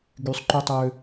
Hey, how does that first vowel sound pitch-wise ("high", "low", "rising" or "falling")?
high